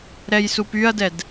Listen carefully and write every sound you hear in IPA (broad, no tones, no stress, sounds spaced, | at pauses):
ɾ ɛ j s u p y ɐ̯ d ɛ d